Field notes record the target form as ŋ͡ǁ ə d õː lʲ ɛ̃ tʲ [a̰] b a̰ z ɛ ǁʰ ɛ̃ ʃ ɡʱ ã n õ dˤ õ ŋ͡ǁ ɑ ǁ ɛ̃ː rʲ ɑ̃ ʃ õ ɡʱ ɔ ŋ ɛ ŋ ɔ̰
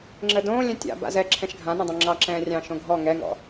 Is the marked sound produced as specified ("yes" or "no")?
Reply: yes